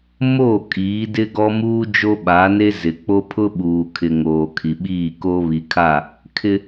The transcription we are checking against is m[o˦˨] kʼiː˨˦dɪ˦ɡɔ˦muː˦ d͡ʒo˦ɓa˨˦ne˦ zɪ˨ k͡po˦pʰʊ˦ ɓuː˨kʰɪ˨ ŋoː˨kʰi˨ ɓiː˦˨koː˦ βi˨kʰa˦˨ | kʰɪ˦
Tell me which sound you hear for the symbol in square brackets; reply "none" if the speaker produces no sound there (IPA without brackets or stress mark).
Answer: o˦˨